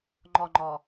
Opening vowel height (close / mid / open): mid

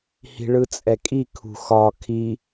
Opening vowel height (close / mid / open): close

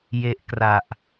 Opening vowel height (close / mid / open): mid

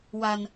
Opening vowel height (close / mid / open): open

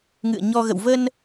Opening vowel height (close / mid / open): close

